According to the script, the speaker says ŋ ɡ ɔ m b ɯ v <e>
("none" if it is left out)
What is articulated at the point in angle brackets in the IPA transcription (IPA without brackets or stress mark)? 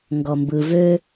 ø